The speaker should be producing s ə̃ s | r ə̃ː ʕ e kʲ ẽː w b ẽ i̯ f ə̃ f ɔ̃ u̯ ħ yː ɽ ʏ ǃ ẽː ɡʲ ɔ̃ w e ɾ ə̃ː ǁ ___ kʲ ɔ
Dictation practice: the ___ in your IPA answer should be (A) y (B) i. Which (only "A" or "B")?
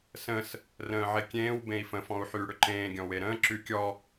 A